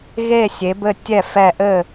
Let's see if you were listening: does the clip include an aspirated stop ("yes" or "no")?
no